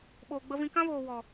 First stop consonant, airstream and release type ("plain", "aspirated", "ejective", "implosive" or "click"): implosive